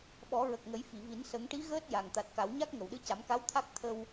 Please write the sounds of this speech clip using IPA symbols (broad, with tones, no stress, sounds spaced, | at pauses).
ɓ ɔ˨˩˦ ɹ ə˨˩ k̚ ŋ ə˨˩˦ j f i˨˩˨ v i˨˩˦ n s ə˨˩˦ ŋ ʈ i˧˥ ɣ əː˦˥ t̚ j a˨˩ ŋ t̪ a˨˩ t̚ k a˨˩˦ w ɲ a˦˥ k̚ ŋ ə˨˩˨ w ɗ ɨ˧˥ c a˨˩˦ m k a˧˥ w t̪ʰ a˦˥ k̚ t̪ʰ ə˧ w